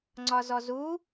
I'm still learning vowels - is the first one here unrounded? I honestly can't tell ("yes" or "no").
no